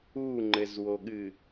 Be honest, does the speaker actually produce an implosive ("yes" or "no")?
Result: yes